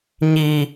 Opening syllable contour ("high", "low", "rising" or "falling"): high